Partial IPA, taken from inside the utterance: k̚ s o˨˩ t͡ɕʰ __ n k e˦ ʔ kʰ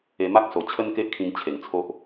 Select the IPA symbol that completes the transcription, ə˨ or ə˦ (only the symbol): ə˦